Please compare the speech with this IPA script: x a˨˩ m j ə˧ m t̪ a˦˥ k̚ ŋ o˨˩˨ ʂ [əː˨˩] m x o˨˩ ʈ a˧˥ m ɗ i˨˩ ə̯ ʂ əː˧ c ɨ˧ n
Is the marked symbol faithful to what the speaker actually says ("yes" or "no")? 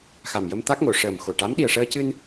yes